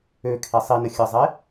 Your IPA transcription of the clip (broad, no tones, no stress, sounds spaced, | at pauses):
ø kʰ e sˤ i n ə xʲ ə zˤ e